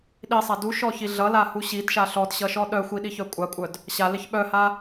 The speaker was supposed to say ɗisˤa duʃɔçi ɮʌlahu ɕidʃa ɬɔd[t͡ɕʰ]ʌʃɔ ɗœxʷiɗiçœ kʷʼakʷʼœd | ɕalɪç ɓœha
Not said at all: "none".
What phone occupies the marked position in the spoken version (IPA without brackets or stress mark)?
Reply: ɕ